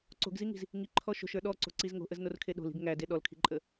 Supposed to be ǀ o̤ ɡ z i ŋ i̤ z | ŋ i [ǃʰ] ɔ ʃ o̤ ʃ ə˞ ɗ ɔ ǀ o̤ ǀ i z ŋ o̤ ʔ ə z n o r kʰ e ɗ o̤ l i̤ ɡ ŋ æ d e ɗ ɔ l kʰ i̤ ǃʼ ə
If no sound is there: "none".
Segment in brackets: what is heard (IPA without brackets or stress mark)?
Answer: ǃʰ